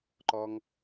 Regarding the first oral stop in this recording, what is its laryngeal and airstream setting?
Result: click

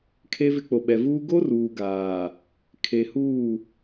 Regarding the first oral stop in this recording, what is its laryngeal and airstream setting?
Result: aspirated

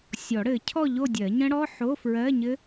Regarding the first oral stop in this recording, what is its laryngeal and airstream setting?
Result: aspirated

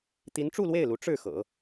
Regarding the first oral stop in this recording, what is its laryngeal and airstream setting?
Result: plain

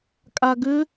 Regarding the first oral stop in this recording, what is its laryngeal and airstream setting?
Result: ejective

